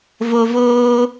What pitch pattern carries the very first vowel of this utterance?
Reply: low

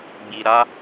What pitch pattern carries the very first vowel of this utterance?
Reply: low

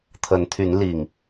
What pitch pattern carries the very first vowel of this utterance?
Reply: rising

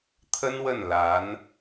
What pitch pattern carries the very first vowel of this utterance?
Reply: high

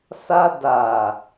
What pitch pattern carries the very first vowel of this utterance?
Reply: high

